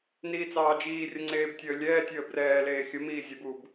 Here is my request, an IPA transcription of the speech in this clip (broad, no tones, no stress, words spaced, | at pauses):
niːt͡sɑːd͡ʒiːrʲə ŋ͡ǀeːbtʲəːlʲɛːtʲəː brɛːleː xʲəmiː zʲəbuːb